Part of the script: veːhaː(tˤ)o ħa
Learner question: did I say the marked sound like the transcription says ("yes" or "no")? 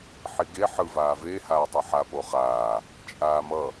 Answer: yes